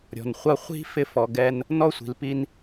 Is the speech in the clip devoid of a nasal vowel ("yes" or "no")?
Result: yes